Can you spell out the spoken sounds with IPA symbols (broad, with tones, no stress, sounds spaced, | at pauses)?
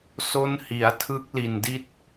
s o˦˥ n h i˩˦ a̯ tʰ ɯ˦˥ k̚ l i˨˩ n d i˦˥ t̚